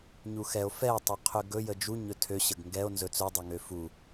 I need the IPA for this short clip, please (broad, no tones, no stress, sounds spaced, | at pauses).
ɲ u x ɛ o̯ f ɛ tˤ ø qʰ ø ɡ ɵ j ə d͡ʒ u ɲ ɵ tʰ ø ɕ ə ɡ ŋ ɡ ɛ o̯ n z ɵ t͡s ɵ dˤ ɵ ŋ ø f u